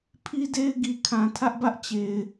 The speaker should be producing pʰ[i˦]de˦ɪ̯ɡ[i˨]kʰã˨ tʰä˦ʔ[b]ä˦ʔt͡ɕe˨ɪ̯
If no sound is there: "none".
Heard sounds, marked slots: i˦, i˨, b

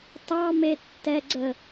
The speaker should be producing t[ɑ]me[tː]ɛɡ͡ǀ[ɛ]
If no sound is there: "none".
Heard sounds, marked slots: ɑ, tː, ə

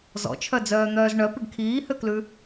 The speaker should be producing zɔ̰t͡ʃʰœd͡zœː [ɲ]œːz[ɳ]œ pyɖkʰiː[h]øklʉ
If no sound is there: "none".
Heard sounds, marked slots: n̪, ɳ, h

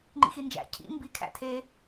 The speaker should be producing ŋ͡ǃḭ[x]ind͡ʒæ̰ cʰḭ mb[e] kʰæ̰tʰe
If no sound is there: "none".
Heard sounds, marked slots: x, i

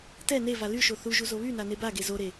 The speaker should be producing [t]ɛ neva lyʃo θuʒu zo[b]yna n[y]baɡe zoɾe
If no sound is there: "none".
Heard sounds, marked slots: t, β, e

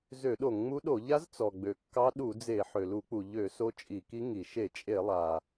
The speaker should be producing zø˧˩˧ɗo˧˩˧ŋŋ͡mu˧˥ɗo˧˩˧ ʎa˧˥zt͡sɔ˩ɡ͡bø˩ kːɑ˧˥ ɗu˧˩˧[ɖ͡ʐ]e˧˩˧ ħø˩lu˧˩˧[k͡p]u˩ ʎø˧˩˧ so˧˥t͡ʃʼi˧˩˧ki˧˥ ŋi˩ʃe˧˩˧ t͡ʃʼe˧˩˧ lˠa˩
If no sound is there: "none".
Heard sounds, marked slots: d͡z, k͡p

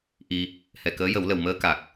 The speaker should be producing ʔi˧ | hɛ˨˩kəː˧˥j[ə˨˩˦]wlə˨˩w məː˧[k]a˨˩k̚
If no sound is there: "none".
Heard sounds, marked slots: ə˨˩˦, k

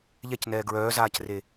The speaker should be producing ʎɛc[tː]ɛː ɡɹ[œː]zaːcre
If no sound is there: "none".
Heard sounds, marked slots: n, œː

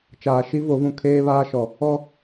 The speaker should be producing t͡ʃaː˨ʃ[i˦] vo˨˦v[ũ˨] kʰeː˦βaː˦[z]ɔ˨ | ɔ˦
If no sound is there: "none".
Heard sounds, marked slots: i˦, ũ˨, ʃ

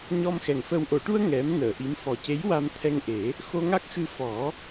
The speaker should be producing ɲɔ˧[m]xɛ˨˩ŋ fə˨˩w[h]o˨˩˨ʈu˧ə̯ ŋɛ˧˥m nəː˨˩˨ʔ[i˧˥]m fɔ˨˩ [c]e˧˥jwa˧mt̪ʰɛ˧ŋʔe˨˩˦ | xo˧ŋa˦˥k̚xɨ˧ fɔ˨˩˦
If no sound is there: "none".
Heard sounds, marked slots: m, ʔ, i˧˥, c

